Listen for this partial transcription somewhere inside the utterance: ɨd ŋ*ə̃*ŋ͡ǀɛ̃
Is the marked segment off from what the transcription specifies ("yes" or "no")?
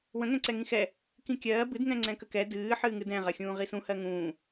yes